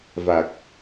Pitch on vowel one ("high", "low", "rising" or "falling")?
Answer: low